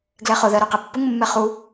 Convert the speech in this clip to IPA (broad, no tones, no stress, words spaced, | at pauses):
ɡlɛχʊðɜ ɾoqepːʊŋmːɛ χu